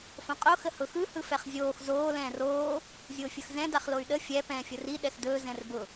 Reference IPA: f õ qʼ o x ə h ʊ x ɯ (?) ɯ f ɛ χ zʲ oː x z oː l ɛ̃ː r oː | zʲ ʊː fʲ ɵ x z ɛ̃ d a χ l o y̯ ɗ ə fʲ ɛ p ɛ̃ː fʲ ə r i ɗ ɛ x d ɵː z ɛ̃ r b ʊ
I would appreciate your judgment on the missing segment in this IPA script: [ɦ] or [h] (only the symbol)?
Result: h